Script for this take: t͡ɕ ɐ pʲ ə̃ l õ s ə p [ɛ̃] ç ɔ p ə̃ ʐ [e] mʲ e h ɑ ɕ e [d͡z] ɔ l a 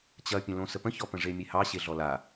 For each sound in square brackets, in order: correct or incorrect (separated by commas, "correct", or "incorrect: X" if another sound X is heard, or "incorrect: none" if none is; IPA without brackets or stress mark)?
incorrect: ə̃, correct, incorrect: ɮ